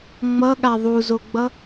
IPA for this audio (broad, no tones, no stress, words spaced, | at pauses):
ŋ͡mʌɠa ðˤuzoɡ͡bʌ